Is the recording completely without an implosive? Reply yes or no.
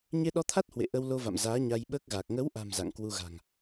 no